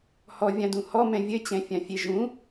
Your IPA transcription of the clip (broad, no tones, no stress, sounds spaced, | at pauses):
h ɔ vʲ ã d ũ h ɔ m ɛ̃ vʲ ɘ t͡ɕ ɛ̃ fʲ ã fʲ e ʒ ũ